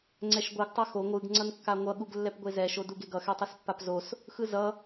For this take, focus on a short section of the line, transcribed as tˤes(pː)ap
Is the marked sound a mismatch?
no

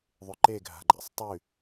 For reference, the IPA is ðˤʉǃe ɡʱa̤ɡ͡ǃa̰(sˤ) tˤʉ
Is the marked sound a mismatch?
no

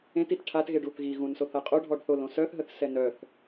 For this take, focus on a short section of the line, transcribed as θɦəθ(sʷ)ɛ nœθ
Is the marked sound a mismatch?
yes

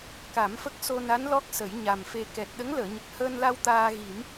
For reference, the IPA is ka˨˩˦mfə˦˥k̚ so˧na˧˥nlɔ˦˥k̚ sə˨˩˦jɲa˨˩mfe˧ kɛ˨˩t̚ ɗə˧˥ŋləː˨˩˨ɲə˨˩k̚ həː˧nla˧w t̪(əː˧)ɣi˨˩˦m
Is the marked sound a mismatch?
yes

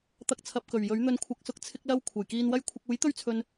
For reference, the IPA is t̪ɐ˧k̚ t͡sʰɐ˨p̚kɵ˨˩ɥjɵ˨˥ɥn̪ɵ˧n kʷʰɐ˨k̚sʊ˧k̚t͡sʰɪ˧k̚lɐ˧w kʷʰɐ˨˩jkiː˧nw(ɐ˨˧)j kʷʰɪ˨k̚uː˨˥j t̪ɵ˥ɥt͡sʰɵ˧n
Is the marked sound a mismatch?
yes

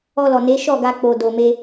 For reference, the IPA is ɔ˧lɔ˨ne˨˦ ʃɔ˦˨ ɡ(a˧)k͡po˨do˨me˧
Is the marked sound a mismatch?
no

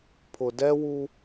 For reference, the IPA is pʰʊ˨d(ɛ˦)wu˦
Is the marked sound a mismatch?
no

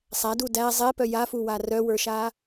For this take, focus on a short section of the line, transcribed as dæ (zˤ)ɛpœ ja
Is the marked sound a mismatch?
no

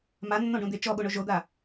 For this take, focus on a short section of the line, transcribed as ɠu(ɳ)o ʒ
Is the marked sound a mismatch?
no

